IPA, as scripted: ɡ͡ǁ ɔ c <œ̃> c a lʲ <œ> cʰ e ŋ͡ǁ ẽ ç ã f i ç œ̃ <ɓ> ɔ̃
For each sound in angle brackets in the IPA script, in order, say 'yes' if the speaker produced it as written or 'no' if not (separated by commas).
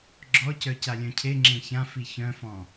no, no, no